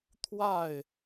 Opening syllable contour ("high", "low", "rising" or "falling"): falling